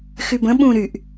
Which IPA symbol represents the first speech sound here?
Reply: x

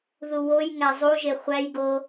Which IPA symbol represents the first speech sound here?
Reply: ð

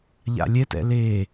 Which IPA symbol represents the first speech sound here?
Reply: ʎ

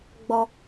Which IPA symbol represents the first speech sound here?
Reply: ɡ͡b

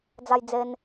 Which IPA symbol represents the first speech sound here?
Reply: d͡z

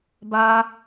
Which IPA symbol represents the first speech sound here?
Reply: b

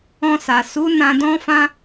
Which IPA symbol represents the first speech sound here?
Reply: ɔ̃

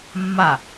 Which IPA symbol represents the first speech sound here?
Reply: mː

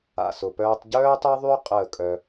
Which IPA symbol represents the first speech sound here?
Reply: a̰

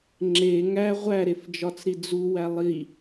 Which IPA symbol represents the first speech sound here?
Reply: ŋ͡ǁ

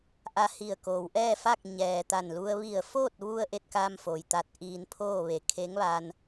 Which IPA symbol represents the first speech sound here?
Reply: ʔ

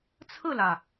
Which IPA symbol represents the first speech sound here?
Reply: t͡sʰ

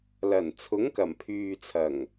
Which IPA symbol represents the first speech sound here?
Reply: l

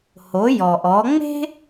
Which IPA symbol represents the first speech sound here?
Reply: h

